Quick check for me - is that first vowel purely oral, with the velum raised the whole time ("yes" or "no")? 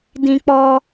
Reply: no